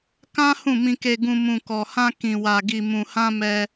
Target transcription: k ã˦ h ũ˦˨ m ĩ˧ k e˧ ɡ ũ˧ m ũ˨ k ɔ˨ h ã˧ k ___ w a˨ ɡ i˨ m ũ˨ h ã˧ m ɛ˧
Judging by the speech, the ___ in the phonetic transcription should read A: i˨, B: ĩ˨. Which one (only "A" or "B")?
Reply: B